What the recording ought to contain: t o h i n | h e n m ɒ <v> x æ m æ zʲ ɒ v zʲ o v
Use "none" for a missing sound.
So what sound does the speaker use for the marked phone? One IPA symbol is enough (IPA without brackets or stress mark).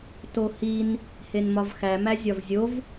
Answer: v